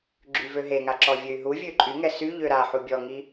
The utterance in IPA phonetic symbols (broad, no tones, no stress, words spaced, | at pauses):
ɡ͡ǁyvøɦeŋa ǁɔvʲøy̯ɦuvʲø ǃʼyŋɛ sy ʎøɾaħu bʲɔŋi